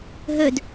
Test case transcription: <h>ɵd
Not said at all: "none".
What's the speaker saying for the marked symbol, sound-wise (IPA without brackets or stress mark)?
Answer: ɦ